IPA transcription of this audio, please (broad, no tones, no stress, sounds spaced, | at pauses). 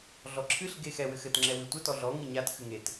ɮ ɔ ǁʰ ɨ ɬ ɡ e x ɛ w ɘ x ɘ t ŋ͡ǁ ɛ w ɨ tʷ ɘ t ɔ ɮ ɔ ŋ ɨ ɲ a t x ɨ ŋ e t